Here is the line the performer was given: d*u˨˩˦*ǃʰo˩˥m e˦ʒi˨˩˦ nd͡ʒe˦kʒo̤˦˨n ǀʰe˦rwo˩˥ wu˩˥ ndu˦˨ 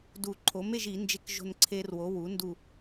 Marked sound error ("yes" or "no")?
no